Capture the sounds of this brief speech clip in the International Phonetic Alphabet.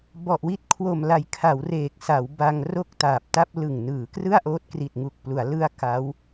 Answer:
b ɔ˨˩ ʔ w i˦˥ t̚ kʰ w o˨˩ m l a˩˦ j kʰ a˩˦ w r eː˨˩ k̚ s a˩˦ w b a˧ ŋ r o˥˩ k̚ t aː˨˩ p̚ t a˥˩ p̚ l ɯ˨˩ ŋ n ɯː˩˦ k r ɯ˥˩ a̯ ʔ oː˦˥ t̚ k r i˨˩ t̚ ŋ u˨˩ k̚ p l u˩˦ a̯ l ɯ˧ a̯ k a˦˥ w

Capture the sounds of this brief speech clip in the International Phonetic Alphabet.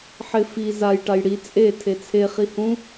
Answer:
ħ ɪ f i z a j ʈ a j ɽ i t͡sʼ e tʰ e t͡sʰ e χ i h ũ

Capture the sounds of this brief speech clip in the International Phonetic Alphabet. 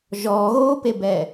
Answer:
ʒ ɔ ɣ oː p e b ɛ

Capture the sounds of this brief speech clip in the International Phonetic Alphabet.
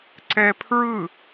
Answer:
ǀ ɛ pʰ ɹ ɯ

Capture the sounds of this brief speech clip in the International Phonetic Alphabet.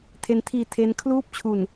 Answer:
tʰ e˦˥ n tʰ iː˧ tʰ e˦˥ n kʰ l uː˥˩ p̚ t͡ɕʰ u˨˩ n

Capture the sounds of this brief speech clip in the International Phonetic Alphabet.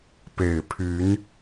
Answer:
p e˨˩ ɪ̯ pʰ y˨˦ n

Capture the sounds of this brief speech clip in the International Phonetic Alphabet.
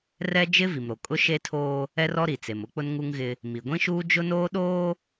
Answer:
r ɛ˦ d͡ʒ ɪ˦ v i˨ m ɾ o˨ kʼ ʊ˦ ʃ e˦ tʰ oː˦ | ɛ˦ r ɔ˦ ɾ i˨ t͡s e˨ m ʊ˦ k͡p ʊ˦ n ŋ u˦ ŋ ɣ ɪ˦ | m i˨ ɡʷ ĩ˦ ʃ uː˦ d͡ʒ ʊ˦ n oː˦ ɗ oː˦

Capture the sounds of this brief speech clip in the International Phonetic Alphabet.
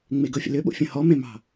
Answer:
ŋ͡m e ɡ ɤ fʲ ə̰ l ʏ ɓ o̰ fʲ ə̃ h ɔ m ẽ m ɑ̤

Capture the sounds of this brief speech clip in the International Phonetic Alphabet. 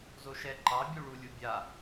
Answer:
z o ʃ ɛ ǃ ɑ bʲ u ɭ u lʲ u bʲ a

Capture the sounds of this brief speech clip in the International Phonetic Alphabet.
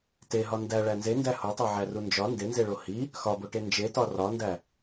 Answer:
t e ɦ ɒ n d æ ɭ æ n z e n d æ h o tˤ o ʕ æ r u n d͡ʒ ɒ n d e n z e ɭ o h i | x ɒ b o ʈ e n d͡ʒ e t ɒ r ɒ n d æ

